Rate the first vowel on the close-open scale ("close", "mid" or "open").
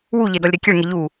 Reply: close